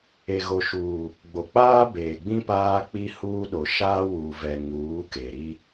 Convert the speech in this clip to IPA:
e˨ɣo˨ʃuː˨ | ɡ͡bo˨k͡paː˦beː˨ɡ͡bĩ˦ paː˦k͡pi˦huː˦ɗo˨ ʃaː˦wu˨vɛ˨ ŋuː˨˦ke˨ɾi˦

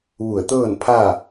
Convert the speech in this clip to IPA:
ʋu˧˩ə̯t̪ɤː˥˨npʰa˥˨

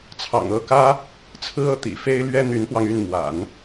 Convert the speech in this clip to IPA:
t͡sʰɑ̰˨˩ŋɤ˥˩kä˥ | t͡sʰɹ̩˥ɤ˥˩ t̪ḭ˨˩fe˥ɪ̯ lɥɛ˥n̪y˧˥npwɑ˧ŋy˥˩n mwa̰˨˩˦n

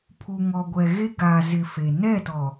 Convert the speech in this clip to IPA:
pʰu˨ŋɔ˨ɡʷɛ˨ɣe˦ ɡaː˨zɪ˨ fe˨ nɛ˦˨tɔ˨

